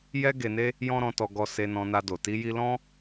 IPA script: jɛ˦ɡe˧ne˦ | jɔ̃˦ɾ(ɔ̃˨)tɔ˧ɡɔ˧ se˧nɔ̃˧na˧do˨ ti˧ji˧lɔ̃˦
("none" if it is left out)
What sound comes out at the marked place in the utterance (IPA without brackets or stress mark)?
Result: ɔ̃˧